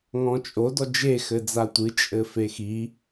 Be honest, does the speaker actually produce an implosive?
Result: no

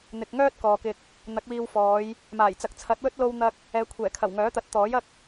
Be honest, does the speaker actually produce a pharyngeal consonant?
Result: no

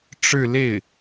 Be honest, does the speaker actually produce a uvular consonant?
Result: no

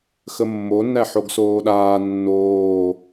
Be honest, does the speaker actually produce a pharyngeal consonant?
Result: yes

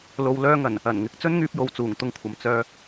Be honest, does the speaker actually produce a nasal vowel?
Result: no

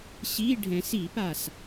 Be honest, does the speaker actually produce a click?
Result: no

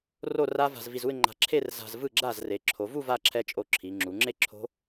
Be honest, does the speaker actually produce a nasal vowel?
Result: no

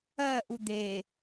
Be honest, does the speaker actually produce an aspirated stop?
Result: no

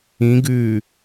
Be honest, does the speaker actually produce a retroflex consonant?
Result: no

